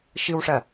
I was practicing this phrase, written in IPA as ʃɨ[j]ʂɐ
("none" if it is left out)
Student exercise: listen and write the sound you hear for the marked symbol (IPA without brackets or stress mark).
w